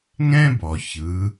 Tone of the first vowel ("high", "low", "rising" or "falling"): high